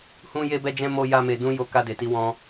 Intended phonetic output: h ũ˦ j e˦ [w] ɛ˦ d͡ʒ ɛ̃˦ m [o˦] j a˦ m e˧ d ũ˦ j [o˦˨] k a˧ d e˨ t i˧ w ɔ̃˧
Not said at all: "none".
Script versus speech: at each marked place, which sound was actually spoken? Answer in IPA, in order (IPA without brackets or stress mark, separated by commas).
b, o˦, o˦